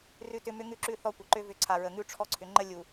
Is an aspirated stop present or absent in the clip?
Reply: present